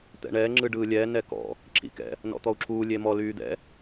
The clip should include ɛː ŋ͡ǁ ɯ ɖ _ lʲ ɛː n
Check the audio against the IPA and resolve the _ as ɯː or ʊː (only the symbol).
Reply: ɯː